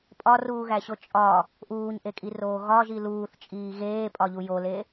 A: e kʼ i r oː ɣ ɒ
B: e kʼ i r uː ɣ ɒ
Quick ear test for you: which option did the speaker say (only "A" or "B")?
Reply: A